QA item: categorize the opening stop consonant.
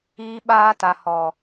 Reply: implosive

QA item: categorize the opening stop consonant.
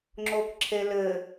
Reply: click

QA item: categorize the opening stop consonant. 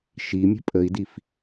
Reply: ejective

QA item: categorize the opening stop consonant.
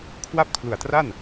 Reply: aspirated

